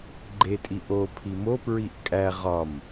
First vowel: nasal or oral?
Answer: oral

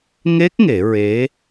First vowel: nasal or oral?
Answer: oral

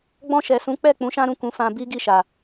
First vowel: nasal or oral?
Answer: nasal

